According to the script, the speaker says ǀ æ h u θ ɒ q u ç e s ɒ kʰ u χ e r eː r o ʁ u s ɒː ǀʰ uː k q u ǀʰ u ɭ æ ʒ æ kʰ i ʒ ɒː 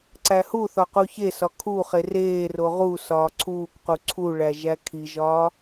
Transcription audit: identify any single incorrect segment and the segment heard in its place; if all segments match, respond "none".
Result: none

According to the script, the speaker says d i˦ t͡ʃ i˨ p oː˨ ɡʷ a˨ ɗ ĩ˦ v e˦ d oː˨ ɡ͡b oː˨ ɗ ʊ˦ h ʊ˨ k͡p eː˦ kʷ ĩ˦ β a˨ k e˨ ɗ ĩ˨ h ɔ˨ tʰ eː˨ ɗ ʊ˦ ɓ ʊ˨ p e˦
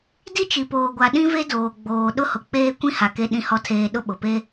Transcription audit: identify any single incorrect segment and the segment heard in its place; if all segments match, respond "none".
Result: β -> h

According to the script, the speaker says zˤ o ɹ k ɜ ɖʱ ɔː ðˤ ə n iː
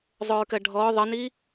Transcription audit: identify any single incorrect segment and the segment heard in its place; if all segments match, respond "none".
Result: none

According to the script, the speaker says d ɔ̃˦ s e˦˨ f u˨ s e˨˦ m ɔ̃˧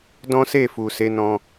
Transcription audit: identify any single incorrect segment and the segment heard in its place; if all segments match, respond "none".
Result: m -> n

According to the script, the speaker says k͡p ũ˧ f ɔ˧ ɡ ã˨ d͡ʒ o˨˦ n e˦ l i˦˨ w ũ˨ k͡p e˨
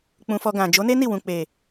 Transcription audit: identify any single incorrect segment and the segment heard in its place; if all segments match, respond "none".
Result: l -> n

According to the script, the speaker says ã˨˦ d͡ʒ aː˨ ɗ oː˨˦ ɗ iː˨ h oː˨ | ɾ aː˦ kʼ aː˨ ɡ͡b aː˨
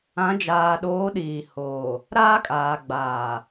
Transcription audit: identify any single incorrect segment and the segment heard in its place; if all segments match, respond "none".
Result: none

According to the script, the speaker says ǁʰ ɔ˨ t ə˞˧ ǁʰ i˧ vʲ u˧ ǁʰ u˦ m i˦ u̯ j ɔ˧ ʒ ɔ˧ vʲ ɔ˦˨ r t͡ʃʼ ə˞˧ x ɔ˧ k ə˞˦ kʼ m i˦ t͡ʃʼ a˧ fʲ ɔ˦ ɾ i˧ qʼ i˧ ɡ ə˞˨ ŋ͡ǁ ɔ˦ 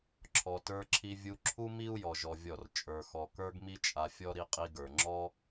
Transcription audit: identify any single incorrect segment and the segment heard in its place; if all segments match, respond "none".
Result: kʼ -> ɡ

